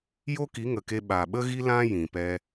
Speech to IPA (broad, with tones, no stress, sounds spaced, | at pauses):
j o˦ k i˨˦ ŋ ə˨ k e˧ ɓ a˨ ɓ ə˦ ɣ i˦ l ã˦ j ĩ˨ p ɛ˧